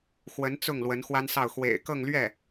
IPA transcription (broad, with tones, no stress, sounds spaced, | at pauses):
x w ə˧˥ n t͡s ʊ˥˩ ŋ l w ə˧˥ n x w a˥ n s ɑ˥˩ ʊ̯ x w ḛ˨˩ ɪ̯ k ɤ˥˧ ŋ l ɥ ɛ˥˩